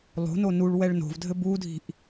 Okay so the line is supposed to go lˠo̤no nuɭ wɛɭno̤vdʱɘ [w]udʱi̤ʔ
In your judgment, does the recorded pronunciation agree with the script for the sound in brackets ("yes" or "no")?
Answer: no